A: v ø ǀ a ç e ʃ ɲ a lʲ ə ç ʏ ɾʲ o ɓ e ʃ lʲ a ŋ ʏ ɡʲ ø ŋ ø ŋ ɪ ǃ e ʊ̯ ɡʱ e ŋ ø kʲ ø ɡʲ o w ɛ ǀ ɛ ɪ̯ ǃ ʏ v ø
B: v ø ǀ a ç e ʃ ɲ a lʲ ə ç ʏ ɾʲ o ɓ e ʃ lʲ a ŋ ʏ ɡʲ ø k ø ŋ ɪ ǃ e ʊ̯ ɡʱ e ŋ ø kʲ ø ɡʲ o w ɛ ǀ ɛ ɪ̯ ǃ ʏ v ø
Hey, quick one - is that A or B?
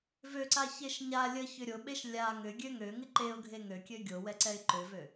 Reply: A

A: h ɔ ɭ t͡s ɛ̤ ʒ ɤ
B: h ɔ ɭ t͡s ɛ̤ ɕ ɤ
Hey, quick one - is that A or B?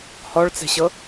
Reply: B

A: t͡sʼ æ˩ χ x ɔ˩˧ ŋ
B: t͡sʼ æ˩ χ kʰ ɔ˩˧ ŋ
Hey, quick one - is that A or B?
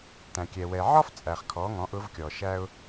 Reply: B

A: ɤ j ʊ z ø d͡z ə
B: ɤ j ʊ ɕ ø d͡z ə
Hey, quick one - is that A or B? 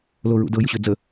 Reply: B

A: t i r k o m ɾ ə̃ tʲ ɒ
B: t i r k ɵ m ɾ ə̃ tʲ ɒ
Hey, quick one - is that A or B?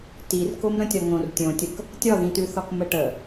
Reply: A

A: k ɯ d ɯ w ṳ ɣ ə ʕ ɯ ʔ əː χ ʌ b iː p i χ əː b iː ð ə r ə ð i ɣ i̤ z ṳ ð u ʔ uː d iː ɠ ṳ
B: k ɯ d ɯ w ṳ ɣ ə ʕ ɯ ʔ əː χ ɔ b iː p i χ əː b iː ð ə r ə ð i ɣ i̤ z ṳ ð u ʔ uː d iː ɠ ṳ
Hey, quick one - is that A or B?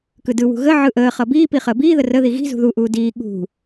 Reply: A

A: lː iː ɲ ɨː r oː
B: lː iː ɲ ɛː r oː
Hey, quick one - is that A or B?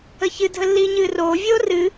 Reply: A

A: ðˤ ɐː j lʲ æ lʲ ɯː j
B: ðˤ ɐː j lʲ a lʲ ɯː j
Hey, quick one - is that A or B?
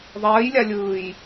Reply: B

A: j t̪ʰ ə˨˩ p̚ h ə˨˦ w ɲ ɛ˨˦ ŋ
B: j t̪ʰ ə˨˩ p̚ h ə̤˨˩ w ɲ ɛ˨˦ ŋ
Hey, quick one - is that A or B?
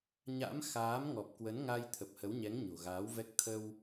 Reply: A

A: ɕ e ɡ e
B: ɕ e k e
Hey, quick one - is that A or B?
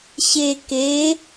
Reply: B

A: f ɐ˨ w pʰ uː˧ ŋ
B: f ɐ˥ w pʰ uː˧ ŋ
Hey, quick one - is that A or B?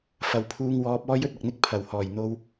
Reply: A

